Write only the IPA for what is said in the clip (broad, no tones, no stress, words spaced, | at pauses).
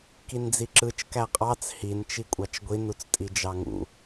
kind͡ziǁɯt͡ʃ kæqʼɑt͡s hin t͡ʃikʷʼɑt͡ʃɡʷin ut͡stʼid͡ʒɑŋṵ